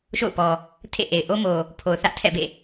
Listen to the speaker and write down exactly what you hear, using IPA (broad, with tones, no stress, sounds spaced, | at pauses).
ʃ o̰˦˨ ʊ̯ p ɔ˨ | tʰ ḛ˦˨ ʔ e˨ ɪ̯ ʔ o˦ m o˨ | pʰ o˨ ʊ̯ θ ä˦ ʔ tʰ ɛ̰˦˨ b ḛ˦˨